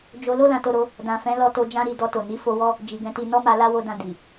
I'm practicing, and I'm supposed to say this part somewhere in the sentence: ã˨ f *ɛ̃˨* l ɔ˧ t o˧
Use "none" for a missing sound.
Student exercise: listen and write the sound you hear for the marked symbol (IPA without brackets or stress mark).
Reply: ɛ̃˨˦